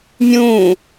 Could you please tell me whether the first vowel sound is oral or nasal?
nasal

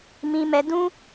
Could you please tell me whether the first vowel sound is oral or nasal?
nasal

